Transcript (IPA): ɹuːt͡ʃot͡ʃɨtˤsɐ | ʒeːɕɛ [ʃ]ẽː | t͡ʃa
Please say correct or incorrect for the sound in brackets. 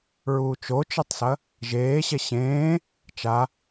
incorrect